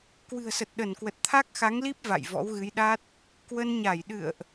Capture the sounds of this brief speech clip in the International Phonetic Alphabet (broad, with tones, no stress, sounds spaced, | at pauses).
k w ɨ̤˨˩ ə̯ s ə˨˩ t̚ ɗ ə˧˩ n k w ə˨˩ t̚ t̪ʰ a˦˥ k̚ x a˨˦ ŋ l i˦˥ p̚ v a̰˧˨ j v ɔ̰˧˥ w ɣ ɨ˨˦ j ɗ a˦˥ t̚ | k w ə˧ n ɲ a˧˩ j ɗ ɨ̰˧˨ ə̯ ʔ